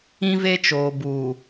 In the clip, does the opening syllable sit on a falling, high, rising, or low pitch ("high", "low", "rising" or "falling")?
high